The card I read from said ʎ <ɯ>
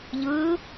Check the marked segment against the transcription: correct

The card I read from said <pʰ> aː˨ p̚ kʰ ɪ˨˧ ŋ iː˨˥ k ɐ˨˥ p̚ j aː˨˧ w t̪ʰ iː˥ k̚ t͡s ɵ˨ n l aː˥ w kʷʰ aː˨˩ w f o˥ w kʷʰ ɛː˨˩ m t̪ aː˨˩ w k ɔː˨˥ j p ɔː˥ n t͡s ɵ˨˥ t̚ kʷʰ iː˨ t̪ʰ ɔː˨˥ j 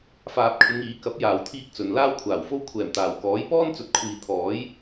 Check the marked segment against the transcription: incorrect: f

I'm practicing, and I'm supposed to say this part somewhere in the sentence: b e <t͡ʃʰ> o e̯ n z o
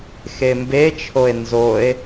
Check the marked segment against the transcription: correct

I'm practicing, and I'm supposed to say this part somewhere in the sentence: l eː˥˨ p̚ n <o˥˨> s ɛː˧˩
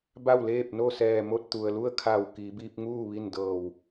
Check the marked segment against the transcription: correct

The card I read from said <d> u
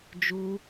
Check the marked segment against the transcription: incorrect: d͡ʒ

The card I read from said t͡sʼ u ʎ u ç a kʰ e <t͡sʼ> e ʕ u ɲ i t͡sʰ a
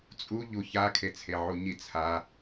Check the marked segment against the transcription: incorrect: t͡sʰ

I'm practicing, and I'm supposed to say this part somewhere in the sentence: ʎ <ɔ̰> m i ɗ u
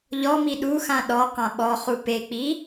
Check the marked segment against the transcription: incorrect: ɔ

